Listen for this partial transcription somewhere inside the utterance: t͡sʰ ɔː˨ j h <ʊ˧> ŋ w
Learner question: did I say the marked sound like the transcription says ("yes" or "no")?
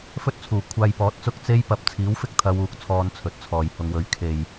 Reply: yes